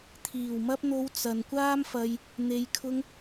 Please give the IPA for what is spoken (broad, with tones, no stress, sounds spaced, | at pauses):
t̪ʰ iː˨˩ w m ɐ˧ p̚ n̪ o˨˧ w t͡s ɐ˨ n kʷ aː˥ m f ɐ˧ j | n̪ e˨˧ j kʰ ʊ˧ ŋ